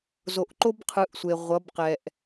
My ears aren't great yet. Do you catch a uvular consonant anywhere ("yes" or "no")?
yes